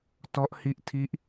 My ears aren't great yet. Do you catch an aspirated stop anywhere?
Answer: yes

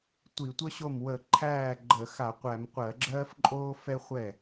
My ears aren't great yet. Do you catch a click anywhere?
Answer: yes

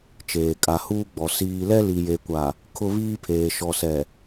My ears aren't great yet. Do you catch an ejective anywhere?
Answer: yes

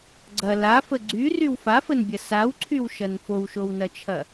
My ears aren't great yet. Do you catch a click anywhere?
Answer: yes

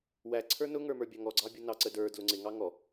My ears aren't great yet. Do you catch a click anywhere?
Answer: yes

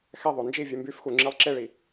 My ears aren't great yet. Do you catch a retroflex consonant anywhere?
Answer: yes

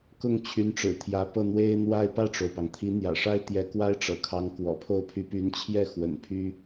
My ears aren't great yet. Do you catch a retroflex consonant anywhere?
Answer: yes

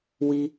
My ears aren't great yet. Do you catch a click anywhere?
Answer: no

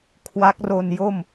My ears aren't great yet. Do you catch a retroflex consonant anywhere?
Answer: no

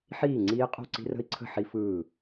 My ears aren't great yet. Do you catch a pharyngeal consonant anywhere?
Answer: yes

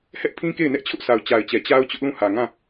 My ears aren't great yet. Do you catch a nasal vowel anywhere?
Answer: yes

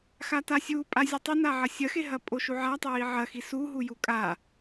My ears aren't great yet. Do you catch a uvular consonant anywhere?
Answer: no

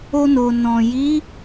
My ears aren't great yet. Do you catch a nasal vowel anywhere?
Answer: yes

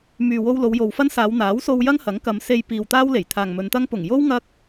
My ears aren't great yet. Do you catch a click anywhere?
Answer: no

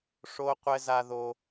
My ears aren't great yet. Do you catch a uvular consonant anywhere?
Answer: yes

